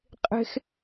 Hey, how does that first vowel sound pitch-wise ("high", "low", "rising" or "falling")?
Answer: high